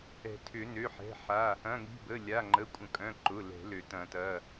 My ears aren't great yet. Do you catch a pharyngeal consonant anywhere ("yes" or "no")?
yes